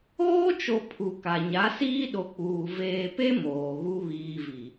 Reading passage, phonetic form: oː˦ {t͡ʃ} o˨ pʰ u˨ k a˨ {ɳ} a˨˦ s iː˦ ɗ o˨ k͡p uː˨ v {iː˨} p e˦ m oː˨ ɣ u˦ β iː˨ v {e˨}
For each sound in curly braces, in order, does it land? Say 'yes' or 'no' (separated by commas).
yes, no, no, no